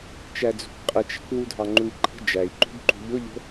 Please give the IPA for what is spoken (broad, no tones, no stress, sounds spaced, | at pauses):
t͡ʃ æ d͡z ṳ k qʼ ə t͡ʃ ə̤ k w u dʱ ɑ ŋ͡ǃ u i̯ ǃʰ ə̤ d͡ʒ æ i̯ ǃ ṳ b ǃ ṳ ʎ ʊ ʎ ə̤